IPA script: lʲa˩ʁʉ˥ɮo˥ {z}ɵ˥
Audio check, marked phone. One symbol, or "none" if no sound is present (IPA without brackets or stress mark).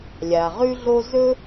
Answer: z